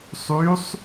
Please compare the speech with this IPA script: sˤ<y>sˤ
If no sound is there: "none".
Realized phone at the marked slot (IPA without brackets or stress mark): y